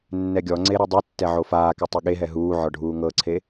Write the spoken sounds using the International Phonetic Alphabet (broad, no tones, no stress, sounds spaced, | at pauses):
nː ɛ ɡʲ ɔ ŋ͡ǀ e ɾ e dˤ u tː ɛ ʕ o f aː k ɛ tˤ e ɠ e ɦ ɛ ɦ uː ʕ ɔ ɖʱ uː ŋ ɤ ǀʰ e